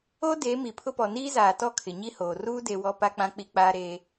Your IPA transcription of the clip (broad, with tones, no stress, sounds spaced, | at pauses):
o˦ d eː˨˦ m i˨ pʰ ʊ˦ p ɔ˨ n iː˦ z aː˨ t ɔ˦˨ kʰ ɪ˨ ɲ i˦ h oː˨ r uː˦ d e˦ w ɔ˦ p a˦ k͡p ã˦ k͡p i˦ k͡p aː˦ ɾ eː˦